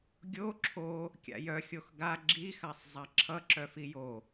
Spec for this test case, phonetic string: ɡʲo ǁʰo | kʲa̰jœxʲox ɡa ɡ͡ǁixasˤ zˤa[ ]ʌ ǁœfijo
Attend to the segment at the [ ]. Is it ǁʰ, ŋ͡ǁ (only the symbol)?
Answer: ǁʰ